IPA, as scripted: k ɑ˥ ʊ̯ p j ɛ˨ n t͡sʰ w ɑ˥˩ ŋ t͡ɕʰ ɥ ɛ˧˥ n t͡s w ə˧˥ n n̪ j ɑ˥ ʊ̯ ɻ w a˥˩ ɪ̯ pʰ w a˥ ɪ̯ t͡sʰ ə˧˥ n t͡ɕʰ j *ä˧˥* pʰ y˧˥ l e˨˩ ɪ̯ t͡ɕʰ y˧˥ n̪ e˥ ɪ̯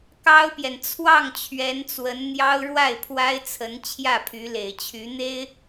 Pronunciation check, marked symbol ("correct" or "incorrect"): incorrect